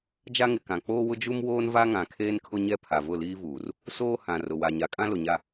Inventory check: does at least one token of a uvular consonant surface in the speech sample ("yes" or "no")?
no